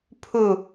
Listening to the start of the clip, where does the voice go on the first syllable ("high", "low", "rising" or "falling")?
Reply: falling